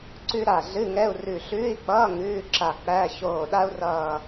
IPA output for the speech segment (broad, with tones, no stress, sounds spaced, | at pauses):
ǀ ʉ˥ ɾ a˧˩ ɮ ɨ˧˥˧ ŋ ɛ˧˥˧ u̯ r ʉ˧˩ ɬ ʉː˧˥˧ i̯ k͡p ʌː˧˥˧ ŋ ʉː˧˥˧ ǁ a˧˩ k͡p æ˧˥˧ ç oː˧˩ ɗ a˥ u̯ r ʌː˧˩